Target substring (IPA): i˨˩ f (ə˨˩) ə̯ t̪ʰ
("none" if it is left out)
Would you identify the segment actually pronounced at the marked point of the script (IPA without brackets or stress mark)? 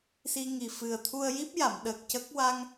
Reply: ɨ˨˩